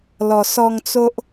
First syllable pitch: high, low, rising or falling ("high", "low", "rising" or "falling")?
low